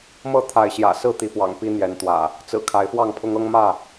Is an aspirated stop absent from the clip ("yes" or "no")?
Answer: no